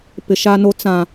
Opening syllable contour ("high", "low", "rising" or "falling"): low